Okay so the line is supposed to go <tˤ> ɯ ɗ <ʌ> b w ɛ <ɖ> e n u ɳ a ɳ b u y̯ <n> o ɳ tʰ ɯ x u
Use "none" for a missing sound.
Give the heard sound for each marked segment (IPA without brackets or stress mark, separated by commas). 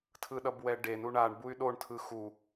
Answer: tʰ, ʌ, ɖ, ɗ